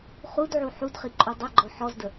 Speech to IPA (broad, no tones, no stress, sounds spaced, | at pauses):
χ u d ʕ u ħ u d χ i ǃʼ u dˤ ɵ ɡ͡ǃ ɔ ħ ɔ z d ə